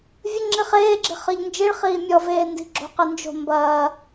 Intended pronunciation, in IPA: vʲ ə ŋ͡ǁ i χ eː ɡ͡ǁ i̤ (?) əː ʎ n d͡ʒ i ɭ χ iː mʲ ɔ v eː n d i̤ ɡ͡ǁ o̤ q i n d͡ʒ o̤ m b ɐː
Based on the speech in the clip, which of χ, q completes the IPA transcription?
χ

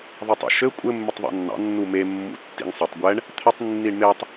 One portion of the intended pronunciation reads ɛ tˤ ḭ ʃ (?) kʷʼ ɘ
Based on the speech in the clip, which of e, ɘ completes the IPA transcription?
ɘ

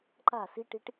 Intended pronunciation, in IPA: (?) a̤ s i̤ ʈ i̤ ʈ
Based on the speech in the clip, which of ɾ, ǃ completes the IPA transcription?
ǃ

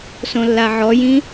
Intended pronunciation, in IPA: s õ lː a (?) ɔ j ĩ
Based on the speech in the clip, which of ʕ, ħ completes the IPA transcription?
ʕ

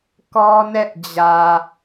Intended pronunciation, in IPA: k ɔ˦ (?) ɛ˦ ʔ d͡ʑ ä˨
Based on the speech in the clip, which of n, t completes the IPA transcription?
n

